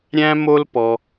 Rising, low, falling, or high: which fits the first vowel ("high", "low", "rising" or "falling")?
high